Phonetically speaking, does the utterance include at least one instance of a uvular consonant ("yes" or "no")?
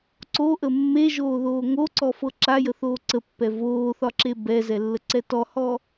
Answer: no